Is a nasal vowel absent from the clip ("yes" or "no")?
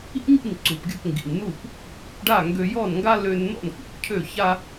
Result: yes